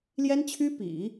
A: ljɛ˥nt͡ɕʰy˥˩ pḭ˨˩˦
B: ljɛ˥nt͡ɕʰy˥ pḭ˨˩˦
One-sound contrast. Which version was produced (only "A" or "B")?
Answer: B